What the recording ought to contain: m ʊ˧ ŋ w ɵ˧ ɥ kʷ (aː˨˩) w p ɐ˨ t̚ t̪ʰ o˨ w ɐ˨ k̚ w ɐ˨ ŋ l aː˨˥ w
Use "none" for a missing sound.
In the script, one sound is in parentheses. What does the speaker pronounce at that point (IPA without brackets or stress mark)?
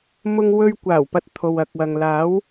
aː˨˩